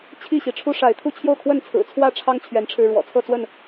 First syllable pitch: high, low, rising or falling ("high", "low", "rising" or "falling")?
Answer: falling